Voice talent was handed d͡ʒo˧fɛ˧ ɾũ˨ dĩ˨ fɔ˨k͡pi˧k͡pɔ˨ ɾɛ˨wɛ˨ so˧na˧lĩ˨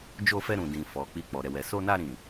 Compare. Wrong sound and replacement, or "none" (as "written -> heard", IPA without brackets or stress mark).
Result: l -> ɾ